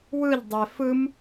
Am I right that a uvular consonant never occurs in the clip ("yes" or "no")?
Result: yes